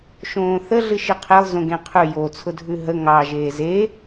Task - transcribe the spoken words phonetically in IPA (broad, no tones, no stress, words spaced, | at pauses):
ʃõːθə ɮɨʃiqʰelˠ zõɡẽqʰʉ jot͡sʰʊdʱʉ ɦə ŋɑ ʒeːze